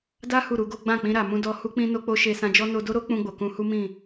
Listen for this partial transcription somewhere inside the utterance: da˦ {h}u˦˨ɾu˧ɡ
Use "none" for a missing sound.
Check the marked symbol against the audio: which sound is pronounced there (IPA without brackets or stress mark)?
h